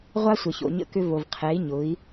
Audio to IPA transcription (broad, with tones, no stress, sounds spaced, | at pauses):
ʁʷ a˦ sʷ ə˨ ç o̰˨ ɲ ə̰˦ k ʏ˦ v o˨ v qʰ ɛ˨˦ i̯ ɲ ʊ˨˦ i̯